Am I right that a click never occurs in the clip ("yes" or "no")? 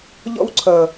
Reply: no